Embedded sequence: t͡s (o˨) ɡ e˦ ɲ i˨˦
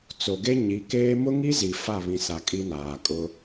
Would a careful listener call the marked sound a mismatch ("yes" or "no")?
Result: no